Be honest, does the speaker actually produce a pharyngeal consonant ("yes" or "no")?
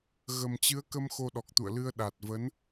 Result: no